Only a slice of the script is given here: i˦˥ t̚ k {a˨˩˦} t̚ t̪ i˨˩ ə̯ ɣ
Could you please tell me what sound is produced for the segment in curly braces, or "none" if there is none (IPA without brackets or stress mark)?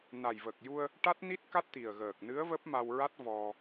a˦˥